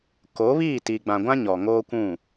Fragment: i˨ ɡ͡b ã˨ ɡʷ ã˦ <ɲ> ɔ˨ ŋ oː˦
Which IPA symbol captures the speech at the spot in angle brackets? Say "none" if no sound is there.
ɲ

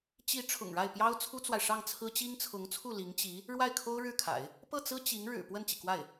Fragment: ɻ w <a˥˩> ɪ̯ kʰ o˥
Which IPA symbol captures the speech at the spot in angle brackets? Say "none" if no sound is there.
a˥˩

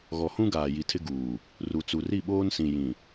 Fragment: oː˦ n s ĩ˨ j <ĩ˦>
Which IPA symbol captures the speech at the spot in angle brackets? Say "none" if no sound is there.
ĩ˨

